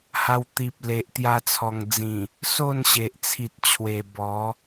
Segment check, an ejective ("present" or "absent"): absent